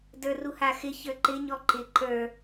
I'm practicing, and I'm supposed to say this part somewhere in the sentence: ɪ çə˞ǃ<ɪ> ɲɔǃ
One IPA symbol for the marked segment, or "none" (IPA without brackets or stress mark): ɪ